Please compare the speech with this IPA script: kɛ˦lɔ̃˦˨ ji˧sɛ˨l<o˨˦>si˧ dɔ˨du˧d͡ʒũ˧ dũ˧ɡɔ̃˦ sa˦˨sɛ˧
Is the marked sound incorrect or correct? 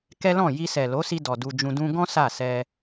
correct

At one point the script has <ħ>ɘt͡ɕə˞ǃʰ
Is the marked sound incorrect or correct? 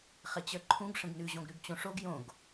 incorrect: χ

